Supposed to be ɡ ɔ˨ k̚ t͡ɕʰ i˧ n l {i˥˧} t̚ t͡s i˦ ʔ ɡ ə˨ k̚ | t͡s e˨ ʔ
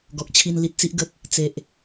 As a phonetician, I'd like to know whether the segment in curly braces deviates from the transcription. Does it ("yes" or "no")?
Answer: yes